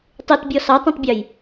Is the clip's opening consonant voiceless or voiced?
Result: voiceless